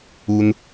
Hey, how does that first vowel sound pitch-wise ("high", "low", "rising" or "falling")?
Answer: low